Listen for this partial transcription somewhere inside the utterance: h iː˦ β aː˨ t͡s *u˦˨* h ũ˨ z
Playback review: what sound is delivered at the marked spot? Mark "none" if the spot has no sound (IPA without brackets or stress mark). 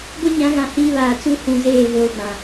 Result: u˦